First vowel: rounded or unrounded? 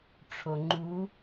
rounded